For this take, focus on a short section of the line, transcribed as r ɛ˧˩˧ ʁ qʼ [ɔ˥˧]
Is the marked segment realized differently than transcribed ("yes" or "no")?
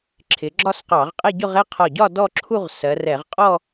no